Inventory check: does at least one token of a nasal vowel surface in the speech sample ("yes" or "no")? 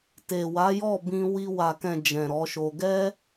yes